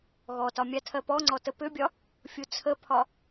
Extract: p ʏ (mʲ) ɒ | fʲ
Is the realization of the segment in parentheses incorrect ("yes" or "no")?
yes